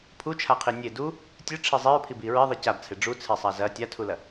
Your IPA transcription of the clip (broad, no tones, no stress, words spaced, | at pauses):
pʰut͡ʃʰaqʰi nʲe du | tʲɨʈ͡ʂʰi zˤiɹpʰibi ɹiðˤi cabt͡sʰe ɖ͡ʐut͡sʰesˤa zɐ tʲatʰulɐ